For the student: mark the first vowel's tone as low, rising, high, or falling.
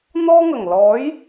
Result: high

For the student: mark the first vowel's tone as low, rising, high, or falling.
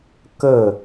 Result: falling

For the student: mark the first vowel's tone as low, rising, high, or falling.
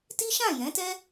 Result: high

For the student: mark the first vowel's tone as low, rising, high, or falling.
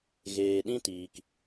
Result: low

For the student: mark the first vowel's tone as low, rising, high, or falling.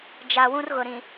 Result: low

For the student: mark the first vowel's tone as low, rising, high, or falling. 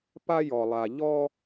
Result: high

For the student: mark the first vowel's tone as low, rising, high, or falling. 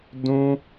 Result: high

